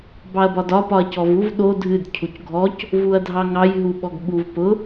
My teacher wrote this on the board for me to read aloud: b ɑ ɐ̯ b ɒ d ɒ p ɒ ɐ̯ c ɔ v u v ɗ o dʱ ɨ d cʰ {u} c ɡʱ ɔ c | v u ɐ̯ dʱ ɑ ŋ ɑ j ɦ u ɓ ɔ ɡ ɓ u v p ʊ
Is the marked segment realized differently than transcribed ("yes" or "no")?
no